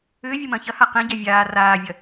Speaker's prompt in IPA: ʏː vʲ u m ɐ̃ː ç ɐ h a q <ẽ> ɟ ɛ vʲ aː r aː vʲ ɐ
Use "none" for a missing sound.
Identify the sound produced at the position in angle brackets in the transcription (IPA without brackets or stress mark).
ẽ